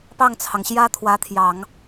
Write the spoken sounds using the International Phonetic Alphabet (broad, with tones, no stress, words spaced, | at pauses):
pɑ˥˩ŋt͡sʰɑ˩ŋɕjä˥ t̪ʰwä˧˥t̪ʰjɑ˨˩˦ŋ